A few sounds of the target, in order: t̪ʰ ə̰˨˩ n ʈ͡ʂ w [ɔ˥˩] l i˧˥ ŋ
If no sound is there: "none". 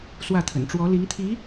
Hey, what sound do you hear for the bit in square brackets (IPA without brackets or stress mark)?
ɔ˧˥